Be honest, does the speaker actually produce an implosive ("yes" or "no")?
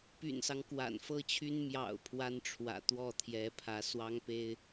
no